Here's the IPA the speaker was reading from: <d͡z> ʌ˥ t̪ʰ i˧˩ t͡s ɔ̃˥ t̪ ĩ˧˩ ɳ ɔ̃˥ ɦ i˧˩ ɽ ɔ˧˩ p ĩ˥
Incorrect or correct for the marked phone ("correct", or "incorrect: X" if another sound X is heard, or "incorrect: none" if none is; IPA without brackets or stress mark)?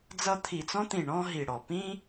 correct